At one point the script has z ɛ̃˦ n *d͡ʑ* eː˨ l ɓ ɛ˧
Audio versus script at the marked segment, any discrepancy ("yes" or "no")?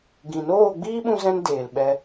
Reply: yes